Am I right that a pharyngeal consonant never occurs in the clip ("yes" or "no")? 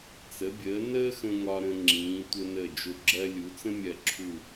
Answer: yes